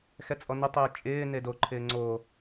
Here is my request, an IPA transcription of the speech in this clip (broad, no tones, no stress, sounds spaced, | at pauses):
x ɛ t͡sʼ ɔ n ɪ tˤ ɪː t͡ʃʼ ɪː n e d o ǃʰ ɪː ŋ͡ǀ o